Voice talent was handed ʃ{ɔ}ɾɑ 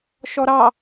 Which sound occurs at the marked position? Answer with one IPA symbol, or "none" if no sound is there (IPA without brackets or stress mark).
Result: ɔ